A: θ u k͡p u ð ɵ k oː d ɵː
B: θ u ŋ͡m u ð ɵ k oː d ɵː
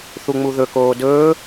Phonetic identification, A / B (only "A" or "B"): B